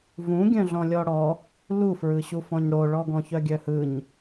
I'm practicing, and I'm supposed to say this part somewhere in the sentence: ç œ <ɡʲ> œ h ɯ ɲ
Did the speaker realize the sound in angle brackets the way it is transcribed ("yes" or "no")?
yes